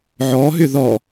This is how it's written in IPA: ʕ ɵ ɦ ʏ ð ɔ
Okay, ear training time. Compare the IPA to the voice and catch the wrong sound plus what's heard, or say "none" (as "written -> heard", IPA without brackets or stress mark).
ɵ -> ɔ